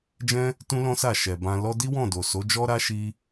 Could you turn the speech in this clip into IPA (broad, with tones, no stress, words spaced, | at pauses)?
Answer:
d͡ʒɛ̃˦ | tũ˦lɔ̃˦sa˦˨ ʃɛ˨ bã˧ lɔ˧di˦wɔ̃˦˨do˨ so˨˦d͡ʒɔ˦ɾa˦ ʃi˦